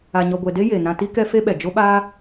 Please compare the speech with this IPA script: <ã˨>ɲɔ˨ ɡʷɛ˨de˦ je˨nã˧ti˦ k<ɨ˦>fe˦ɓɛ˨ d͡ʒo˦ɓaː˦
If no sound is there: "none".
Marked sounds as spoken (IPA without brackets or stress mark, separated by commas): a˨, ɛ˦